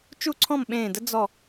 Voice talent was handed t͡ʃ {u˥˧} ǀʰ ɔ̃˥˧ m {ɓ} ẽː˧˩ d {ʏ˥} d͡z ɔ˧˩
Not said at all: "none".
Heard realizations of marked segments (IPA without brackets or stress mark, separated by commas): u˥˧, ɓ, ə˥